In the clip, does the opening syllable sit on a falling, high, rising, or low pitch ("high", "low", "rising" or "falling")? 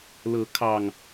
rising